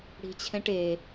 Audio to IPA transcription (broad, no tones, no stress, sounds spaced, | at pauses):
ɽ i̤ t͡ɕʰ ɛ̃ ʈ e